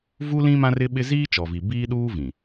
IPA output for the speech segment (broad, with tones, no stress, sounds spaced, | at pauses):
v u˦ l ĩ˦ m ã˦ r ɪ˦ ɓ ɪ˦ z iː˦ t͡ʃ ɔ˨ v i˨ b iː˦ ɗ uː˦ v ĩ˨